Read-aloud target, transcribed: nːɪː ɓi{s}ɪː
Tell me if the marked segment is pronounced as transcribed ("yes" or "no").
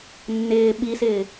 yes